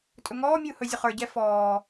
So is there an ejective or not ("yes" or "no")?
yes